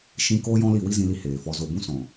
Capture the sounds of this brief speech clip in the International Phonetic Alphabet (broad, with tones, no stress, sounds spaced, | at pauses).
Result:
ʃ ĩ˧ k oː˦ j ɔ̃˦ l i˦˨ w i˦ z ĩ˧ l i˧ h eː˨ f ɔ˧ z o˨ b ũ˧ s ɔ̃˨